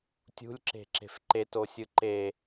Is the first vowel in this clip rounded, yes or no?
yes